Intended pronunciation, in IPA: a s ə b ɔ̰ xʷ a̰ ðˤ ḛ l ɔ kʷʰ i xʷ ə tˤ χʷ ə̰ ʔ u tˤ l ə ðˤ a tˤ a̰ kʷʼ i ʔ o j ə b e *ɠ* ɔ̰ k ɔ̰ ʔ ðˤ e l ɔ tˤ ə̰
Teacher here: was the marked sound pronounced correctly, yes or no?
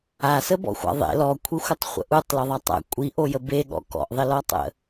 yes